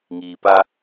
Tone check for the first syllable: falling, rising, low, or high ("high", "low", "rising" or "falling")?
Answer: low